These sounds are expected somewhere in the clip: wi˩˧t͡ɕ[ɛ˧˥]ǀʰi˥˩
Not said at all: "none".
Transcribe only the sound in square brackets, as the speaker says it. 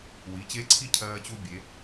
e˧˥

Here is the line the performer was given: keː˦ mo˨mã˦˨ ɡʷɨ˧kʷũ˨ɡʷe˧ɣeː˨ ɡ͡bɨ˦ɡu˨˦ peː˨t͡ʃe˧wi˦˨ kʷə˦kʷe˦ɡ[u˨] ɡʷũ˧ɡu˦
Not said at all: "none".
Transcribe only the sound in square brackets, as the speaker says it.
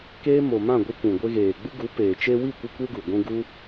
u˨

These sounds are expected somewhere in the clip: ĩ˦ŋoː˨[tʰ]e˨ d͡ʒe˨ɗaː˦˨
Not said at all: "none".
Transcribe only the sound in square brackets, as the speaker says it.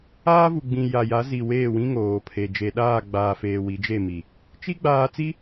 pʰ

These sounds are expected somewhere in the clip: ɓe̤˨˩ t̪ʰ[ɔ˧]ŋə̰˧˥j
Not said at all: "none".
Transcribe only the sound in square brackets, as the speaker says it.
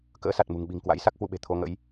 o˧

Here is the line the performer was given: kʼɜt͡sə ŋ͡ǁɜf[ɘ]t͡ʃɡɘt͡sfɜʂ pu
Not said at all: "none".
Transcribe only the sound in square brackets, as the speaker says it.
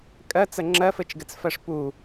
ɘ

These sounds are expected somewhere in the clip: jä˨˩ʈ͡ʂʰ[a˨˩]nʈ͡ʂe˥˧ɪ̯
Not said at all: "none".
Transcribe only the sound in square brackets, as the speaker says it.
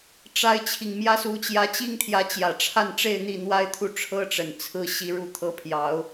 a˥˧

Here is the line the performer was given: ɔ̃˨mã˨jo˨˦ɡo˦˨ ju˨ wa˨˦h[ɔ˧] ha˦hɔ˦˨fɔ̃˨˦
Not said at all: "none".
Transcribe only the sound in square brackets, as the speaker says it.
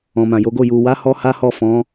ɔ˧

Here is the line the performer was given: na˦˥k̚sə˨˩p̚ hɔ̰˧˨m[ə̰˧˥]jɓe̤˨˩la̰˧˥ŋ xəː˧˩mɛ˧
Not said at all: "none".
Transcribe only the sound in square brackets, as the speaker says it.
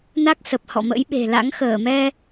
ə̰˧˥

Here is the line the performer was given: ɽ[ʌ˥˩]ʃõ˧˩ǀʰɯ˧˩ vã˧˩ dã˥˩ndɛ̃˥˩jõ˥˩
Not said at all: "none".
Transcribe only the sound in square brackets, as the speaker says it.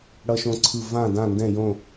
ʌ˧˩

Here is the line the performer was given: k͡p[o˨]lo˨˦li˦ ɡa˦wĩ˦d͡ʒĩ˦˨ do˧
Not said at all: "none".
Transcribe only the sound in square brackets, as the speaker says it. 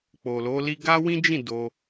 o˨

